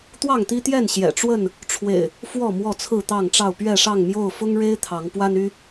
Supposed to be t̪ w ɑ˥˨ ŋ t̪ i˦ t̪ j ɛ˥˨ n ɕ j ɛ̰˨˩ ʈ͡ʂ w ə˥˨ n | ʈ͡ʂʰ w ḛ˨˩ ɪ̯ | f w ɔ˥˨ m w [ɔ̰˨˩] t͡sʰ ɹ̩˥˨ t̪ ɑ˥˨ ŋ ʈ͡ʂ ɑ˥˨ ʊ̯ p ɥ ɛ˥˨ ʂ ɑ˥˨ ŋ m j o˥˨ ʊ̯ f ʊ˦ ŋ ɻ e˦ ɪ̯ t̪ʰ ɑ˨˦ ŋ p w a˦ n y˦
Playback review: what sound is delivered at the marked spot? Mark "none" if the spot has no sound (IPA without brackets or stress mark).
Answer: ɔ˥˨